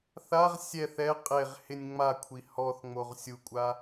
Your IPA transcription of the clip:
θ a ʁ sʲ ɛ θ ɛ qʼ e ʁ h ɪ nʲ ŋ͡m a kʷʰ i h ɔ θ ŋ͡m o ʁ sʲ u kʷʼ a

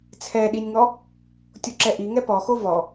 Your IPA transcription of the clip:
t͡sʰ ɛ ɗ i nʲ ŋ ɔ | tʲ o ǁ ɛ ʔ i ŋ ɛ p ɔ x o v ɔ

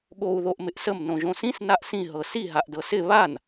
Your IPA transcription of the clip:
ɠ o u̯ ð o ʔ m ɪ ʔ s ə m n õ ʒ õ s ĩ s n a ʔ s ĩ ɦ ɤ s i ɦ a ʔ d ɤ s ɪ β a n

